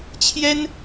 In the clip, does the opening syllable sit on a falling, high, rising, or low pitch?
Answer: high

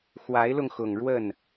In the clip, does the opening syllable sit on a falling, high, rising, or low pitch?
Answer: rising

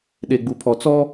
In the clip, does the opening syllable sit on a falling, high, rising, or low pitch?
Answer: low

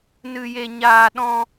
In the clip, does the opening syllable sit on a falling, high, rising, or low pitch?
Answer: high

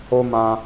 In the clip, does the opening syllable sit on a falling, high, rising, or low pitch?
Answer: high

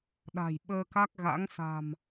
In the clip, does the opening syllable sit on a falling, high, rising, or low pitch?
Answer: low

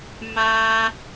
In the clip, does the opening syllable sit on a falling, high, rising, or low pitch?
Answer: high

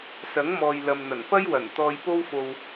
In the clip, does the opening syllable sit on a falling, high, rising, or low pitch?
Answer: rising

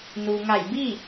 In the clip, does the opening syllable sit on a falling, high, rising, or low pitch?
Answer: low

